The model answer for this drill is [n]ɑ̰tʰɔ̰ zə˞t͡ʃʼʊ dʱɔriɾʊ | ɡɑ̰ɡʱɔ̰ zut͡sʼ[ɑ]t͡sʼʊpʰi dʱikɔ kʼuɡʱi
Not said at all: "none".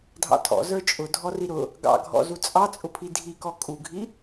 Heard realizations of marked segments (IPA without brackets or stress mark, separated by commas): dʱ, ɑ